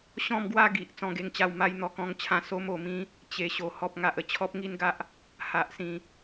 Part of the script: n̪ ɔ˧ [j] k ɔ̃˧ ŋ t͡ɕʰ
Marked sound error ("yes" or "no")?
yes